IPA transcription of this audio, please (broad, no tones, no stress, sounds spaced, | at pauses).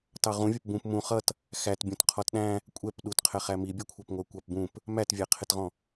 t ɑ ʁ ũ vʲ ʌ p b ũ p m ũ χ ʌ t | x æ t bʲ ũ t qʰ ɔ t ɗ æ̃ | kʷʼ ɛ p ɗ u t qʰ ɛ χ æ m i bʲ ɔ kʷʰ ɑ p ŋʷ ə˞ kʷ ɑ p b ũ p | m æ t vʲ æ qʰ ɪ t ʁ ɔ̃